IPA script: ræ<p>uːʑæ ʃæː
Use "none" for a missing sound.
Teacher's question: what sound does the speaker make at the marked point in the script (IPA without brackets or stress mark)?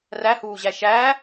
h